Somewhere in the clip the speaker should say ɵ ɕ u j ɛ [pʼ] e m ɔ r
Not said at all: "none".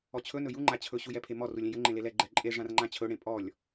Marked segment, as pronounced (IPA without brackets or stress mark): pʰ